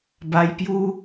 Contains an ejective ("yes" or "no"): no